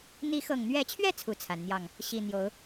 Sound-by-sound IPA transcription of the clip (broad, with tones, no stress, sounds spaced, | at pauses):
n̪ i˨˦ x ɤ˨˩ ŋ n̪ ɥ ɛ˨˦ t͡ɕʰ ɥ ɛ˥˨ t͡sʰ u˥˨ t͡sʰ a˨˦ n n̪ j ɑ˥˨ ŋ | ɕ i˨˩ n̪ j o˨˦ ʊ̯